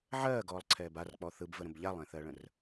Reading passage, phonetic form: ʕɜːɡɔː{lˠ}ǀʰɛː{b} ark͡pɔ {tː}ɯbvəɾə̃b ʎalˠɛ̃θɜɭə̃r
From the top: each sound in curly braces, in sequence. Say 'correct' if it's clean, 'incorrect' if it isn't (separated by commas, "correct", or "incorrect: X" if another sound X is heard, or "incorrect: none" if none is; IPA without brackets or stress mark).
correct, correct, incorrect: θ